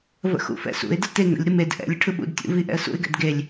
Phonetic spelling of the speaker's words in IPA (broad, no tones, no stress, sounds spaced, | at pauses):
v ə̰ x ṵ f ɛ̰ s ṵ ɪ̯ d ə t e ŋ ə̰ lʲ ɾ ɯ m e d ʔ ɛ̰ lʲ ə ʈʰ ɯ ɓ ṵ d tʲ ṵ v i ʔ ɛ̰ ə̯ s ṵ ɪ̯ ɡ ɛ̰ d ɡ e lʲ